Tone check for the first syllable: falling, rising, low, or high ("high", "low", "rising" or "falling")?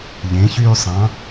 rising